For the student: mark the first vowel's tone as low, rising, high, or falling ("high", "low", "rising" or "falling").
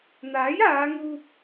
rising